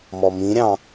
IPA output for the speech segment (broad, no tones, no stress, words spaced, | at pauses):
mɔmĩɾʲɑ̃